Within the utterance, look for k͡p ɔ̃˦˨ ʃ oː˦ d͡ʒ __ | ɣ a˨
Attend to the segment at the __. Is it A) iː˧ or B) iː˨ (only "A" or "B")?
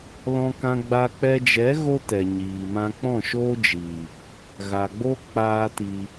B